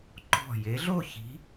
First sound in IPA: ǃ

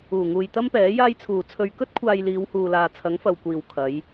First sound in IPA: uː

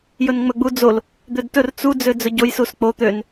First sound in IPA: j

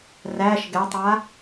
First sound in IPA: r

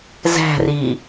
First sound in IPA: z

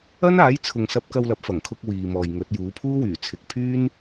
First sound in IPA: ɐ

